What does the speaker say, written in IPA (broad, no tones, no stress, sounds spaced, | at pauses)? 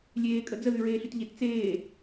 lʲ eː kʼ ə d͡z ə ð y ɹ eː ɬ y t ʎ e t t͡s eː